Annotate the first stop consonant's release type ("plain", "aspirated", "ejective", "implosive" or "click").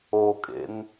ejective